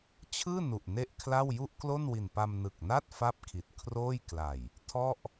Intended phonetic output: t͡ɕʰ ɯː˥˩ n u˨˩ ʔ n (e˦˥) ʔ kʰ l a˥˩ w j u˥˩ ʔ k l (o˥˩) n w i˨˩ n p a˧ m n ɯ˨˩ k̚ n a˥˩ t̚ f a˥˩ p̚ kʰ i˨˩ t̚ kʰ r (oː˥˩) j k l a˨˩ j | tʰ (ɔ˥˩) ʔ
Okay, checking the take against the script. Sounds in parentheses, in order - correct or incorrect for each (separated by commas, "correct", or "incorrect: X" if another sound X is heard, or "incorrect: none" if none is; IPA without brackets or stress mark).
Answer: incorrect: e˥˩, correct, correct, correct